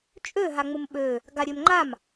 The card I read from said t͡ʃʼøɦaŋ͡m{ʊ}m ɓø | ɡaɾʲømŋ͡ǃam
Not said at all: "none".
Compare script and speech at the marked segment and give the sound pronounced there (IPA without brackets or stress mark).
ʊ